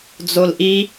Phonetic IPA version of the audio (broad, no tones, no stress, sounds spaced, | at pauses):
d͡z o l ʔ i